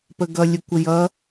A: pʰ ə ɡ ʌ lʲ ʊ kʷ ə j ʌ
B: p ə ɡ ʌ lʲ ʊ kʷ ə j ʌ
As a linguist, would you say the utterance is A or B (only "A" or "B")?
B